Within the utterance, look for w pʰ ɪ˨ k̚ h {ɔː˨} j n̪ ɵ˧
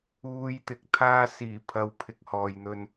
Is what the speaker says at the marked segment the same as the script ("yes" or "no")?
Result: yes